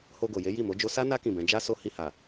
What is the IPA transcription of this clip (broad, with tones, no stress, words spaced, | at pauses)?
ho˧ɡo˨je˨˦ ji˦˨mo˨˦d͡ʒo˦ sa˦na˦ kĩ˦˨bɛ̃˨˦ d͡ʒa˦ so˦ hi˧ha˨